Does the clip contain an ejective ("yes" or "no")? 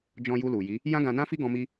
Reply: no